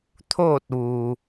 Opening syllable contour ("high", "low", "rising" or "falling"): falling